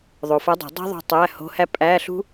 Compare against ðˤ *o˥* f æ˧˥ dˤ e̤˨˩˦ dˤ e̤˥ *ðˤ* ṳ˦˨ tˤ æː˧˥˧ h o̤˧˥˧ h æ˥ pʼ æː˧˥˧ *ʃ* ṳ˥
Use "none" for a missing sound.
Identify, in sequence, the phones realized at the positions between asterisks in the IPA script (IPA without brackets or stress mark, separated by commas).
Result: o˨, ðˤ, ɬ